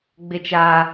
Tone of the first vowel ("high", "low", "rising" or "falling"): high